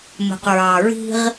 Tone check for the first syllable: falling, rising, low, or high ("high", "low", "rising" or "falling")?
low